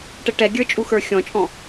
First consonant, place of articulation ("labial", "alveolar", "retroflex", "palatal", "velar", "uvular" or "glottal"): retroflex